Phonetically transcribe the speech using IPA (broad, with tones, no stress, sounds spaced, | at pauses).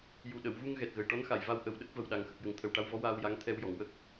j u˨˩ ɗ ə˨˩˨ w v u˧ ŋ ɣ ɛ˨˩ t̚ ɣ ə˨˩ j ʈ ɔ˧˥ n x a˨˩˨ j v a˧ w ʔ ə˨˩˦ w ɗ ə˦˥ k̚ v ə˨˩ w ɗ a˨˩˦ ŋ x ə˨˩ k̚ j ə˨˩ ŋ t̪ʰ ə˨˩ w ʈ a˧ w v ɔ˧˥ w aː˧ w j a˧˥ ŋ t̪ʰ ɛ˧ w j ɔ˨˩˨ ŋ w ə˦˥ k̚